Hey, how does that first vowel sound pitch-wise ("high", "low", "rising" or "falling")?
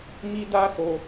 high